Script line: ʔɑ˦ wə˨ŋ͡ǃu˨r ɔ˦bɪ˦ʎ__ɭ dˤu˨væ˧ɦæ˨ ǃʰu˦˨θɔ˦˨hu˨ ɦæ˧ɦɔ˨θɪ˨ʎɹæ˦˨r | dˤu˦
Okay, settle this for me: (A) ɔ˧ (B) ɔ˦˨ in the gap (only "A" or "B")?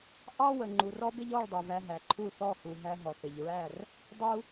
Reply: B